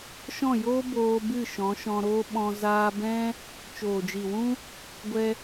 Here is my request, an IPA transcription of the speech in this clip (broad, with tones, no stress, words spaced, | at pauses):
ʃɔ̃˦˨joː˦ boː˧bɨ˦˨ ʃɔ̃˨˦ʃɔ̃˧ɾoː˦ ɓɔ̃˧ zaː˧bɛ̃˦ | t͡ʃoː˨d͡ʒi˨wũ˦ | ɡʷɛ˧